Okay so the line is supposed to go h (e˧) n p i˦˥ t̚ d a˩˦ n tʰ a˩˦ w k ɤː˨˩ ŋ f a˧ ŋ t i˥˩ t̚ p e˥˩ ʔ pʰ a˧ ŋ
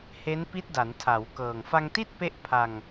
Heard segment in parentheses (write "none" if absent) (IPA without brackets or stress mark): e˦˥